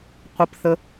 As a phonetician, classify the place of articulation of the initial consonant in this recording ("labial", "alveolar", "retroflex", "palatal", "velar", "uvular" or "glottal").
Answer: uvular